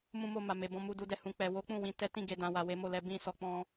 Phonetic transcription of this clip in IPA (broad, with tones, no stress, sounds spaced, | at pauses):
m ũ˧ m o˧ m a˨ m e˨ b ɔ̃˧ m u˧ d u˨ d ɛ˨ h ũ˨ k͡p ɛ˨ w o˨˦ k͡p ũ˦˨ w ĩ˧ t ɛ˦ t ĩ˧ ɡ e˨ d ã˨ w a˨ w e˨˦ m o˦˨ l ɛ˨˦ b ĩ˧ s ɔ˨ k͡p ɔ̃˧